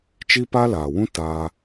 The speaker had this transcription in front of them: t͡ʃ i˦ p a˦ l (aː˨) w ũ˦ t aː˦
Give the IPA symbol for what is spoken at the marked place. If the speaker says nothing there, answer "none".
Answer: aː˨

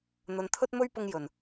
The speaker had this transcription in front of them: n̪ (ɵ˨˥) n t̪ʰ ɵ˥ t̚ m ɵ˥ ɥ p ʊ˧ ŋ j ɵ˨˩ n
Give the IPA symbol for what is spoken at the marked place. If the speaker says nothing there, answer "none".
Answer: ɵ˨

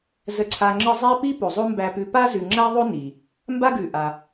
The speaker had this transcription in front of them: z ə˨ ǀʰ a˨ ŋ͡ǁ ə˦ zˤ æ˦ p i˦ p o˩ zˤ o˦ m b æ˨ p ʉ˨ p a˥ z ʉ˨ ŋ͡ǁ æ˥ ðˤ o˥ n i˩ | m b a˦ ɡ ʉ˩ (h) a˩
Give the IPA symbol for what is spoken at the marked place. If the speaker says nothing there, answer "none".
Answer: ʔ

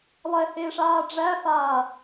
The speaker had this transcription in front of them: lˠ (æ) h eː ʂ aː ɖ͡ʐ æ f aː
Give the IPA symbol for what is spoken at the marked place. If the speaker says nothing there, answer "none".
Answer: ɛ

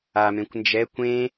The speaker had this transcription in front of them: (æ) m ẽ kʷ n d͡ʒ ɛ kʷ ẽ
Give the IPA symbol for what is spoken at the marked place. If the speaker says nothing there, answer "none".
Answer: a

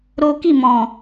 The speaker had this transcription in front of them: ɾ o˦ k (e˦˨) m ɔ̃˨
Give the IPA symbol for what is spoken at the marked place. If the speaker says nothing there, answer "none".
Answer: i˦˨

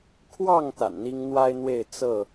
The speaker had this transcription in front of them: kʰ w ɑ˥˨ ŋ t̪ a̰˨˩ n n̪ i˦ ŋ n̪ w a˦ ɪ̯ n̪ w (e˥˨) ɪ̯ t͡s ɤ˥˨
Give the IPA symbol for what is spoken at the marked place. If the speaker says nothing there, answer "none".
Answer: e˥˨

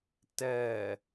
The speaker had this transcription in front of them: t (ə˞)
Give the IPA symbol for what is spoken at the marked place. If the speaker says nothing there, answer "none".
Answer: ɜ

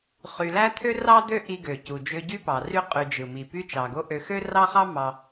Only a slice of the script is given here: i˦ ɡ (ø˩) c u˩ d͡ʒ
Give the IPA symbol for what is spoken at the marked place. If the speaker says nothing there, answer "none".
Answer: ø˩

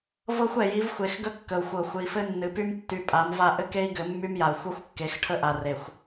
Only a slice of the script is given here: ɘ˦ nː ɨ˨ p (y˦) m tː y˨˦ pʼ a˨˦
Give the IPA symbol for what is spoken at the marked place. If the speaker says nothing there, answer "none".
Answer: y˦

